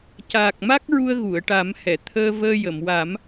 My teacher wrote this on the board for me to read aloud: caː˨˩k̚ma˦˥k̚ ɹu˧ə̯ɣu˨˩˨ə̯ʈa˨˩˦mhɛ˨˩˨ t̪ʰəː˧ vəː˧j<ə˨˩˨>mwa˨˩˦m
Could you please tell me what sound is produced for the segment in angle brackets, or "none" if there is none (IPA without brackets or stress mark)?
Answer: ə˨˩˨